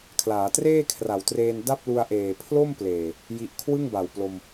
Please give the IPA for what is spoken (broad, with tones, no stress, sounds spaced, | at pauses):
kʰ l aː˩˦ t r eː˥˩ kʰ r a˩˦ w t r eː˧ n d a˥˩ p̚ l u˧ a̯ ʔ eː˨˩ pʰ l o˥˩ m p l eː˨˩ | j i˥˩ ʔ kʰ w ɯ˥˩ ŋ b a˨˩ w p l o˧ m